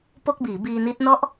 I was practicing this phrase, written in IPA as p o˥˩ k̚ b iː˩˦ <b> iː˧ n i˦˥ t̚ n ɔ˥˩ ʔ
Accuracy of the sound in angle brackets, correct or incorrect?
correct